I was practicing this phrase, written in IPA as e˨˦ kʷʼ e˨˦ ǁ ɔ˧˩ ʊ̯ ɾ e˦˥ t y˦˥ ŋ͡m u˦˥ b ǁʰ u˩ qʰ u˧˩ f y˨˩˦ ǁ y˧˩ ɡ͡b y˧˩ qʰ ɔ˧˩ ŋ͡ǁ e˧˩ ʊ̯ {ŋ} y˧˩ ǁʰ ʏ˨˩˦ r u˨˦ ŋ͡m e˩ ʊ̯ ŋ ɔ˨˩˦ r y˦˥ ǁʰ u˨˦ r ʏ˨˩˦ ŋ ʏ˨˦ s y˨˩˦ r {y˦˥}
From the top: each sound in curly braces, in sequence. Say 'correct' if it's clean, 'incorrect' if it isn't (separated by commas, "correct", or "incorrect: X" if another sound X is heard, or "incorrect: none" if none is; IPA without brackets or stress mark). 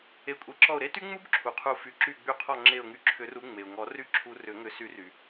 correct, incorrect: y˩